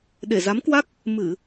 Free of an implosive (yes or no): no